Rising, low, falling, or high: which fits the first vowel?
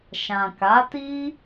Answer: low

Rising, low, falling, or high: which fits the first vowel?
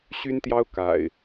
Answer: high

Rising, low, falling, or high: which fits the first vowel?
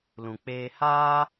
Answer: low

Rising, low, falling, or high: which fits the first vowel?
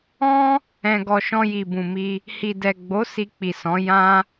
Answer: high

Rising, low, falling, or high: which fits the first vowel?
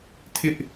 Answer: high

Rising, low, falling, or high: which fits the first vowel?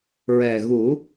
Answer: low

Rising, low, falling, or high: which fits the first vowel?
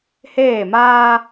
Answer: falling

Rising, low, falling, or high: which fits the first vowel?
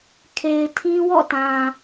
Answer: low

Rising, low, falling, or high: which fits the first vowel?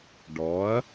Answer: rising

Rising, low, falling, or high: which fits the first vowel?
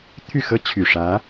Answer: falling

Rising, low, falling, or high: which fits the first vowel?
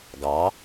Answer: rising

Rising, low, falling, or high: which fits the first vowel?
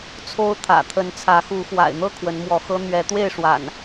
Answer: high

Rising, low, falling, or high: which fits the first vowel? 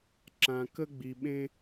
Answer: low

